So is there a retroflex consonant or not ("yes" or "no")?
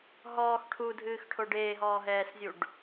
yes